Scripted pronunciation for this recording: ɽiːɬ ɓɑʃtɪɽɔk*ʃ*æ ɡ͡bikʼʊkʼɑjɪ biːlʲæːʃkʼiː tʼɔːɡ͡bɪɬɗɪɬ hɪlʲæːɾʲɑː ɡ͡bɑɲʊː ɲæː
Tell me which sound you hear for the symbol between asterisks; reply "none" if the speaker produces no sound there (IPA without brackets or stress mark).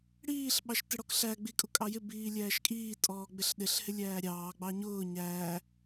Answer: ɬ